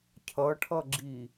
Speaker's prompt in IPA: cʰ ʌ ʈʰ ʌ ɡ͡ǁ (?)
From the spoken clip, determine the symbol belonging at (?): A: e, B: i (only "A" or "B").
B